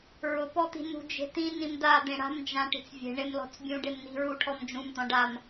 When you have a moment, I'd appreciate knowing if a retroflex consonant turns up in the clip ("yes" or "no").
yes